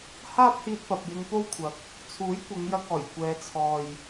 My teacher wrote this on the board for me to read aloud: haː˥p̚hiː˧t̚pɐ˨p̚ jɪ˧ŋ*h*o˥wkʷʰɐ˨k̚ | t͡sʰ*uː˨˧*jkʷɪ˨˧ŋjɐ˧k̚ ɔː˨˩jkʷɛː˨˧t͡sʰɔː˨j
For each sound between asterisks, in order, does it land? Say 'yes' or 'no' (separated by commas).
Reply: no, no